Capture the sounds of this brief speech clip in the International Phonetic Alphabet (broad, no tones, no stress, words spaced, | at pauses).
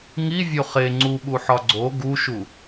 ŋi vʲoχe ŋ͡ǀuɓuħɒ ɡ͡ǀo ɡuʃu